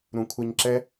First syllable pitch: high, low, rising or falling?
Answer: low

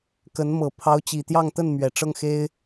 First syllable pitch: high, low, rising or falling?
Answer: rising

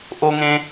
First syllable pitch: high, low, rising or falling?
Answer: high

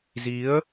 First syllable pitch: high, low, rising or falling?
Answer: rising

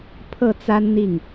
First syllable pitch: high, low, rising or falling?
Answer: falling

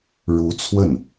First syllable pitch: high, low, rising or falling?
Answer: rising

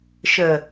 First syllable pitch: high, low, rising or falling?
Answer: low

